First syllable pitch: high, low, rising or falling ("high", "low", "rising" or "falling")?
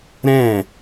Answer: falling